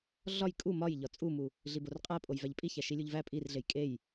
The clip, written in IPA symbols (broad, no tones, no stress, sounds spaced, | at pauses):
ɮ ɒ j kʼ u m ɒ j ʎ ɒ t͡sʼ u m u | ɮ i b o r qʼ æ pʼ o j v æ ʎ pʼ i ç æ ʃ i lʲ u ʎ v æ pʼ i r ɮ e j kʼ e j